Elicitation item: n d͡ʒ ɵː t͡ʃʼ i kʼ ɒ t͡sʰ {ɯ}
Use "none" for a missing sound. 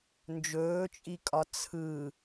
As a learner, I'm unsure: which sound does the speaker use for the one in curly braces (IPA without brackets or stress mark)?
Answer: ɯ